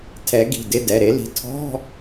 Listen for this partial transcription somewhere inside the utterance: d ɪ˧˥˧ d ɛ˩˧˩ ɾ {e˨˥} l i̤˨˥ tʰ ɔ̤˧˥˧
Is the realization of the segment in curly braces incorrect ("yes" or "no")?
no